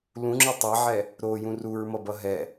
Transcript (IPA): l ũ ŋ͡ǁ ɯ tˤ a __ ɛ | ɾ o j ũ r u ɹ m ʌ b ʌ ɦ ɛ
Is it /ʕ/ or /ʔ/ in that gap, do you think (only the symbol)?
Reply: ʕ